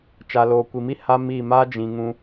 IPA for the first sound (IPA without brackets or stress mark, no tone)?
t͡ʃ